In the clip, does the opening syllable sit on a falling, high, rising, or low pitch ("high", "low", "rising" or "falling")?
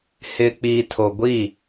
low